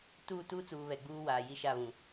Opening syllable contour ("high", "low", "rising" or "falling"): falling